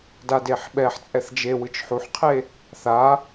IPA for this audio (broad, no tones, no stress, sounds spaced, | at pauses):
d a d e ħ ɓ ɛ ħ t͡sʼ ɛ θ d͡ʒ e w ɯ t͡ʃ ħ u ħ qʰ e | θ a